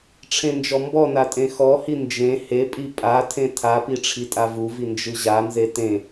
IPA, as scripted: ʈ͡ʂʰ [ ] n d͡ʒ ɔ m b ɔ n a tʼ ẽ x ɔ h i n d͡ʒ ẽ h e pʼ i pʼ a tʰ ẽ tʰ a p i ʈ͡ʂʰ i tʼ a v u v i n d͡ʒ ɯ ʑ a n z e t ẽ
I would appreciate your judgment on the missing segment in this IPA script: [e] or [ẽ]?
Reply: ẽ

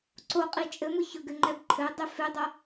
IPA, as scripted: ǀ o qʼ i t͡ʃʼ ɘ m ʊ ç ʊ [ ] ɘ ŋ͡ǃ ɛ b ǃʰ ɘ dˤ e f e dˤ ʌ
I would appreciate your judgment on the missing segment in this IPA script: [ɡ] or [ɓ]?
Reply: ɡ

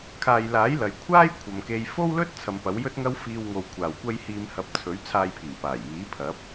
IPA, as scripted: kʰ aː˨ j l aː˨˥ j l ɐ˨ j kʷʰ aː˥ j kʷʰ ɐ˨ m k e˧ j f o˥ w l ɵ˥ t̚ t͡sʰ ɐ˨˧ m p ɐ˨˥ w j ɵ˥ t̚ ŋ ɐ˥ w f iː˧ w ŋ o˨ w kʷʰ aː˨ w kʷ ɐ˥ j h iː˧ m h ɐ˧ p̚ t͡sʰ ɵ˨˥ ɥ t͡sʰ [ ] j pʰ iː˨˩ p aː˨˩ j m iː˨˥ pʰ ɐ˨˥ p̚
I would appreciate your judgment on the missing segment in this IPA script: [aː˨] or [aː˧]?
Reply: aː˧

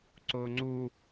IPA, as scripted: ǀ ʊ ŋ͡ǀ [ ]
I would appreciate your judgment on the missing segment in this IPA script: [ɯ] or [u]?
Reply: u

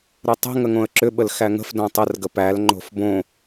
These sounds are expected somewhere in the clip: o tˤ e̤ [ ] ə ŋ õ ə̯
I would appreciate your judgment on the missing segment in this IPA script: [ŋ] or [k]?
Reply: ŋ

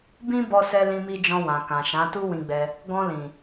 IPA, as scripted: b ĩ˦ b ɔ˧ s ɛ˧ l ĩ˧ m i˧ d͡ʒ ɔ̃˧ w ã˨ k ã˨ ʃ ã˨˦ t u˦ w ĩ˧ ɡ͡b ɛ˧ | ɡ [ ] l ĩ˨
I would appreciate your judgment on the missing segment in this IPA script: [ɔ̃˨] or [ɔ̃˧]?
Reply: ɔ̃˧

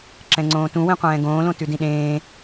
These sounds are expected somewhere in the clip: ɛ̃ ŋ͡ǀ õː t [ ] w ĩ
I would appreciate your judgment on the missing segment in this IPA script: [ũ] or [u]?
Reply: ũ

